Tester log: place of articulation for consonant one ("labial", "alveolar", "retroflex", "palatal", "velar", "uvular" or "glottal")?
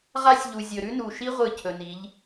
uvular